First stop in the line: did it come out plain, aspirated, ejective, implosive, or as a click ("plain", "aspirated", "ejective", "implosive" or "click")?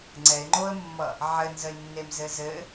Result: click